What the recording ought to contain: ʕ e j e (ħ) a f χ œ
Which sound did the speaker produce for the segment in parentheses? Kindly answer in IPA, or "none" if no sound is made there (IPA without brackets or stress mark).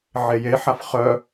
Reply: ħ